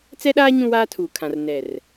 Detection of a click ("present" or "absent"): absent